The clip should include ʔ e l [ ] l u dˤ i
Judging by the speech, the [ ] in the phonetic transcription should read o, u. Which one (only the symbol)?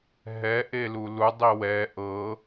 u